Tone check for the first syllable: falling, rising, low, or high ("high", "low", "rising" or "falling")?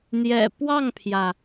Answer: low